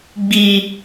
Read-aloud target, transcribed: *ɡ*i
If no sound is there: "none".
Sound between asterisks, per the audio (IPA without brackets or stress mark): ɡ͡b